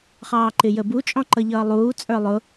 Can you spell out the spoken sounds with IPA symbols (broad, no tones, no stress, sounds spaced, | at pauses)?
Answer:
χ ɑː ǃ ɪ j ə b u t͡ʃʼ ɔ̃ ǃ ʌ ʎ ʌː lˠ uː t͡sʼ ə˞ lˠ ʊ